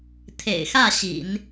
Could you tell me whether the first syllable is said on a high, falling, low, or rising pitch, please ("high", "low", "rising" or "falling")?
low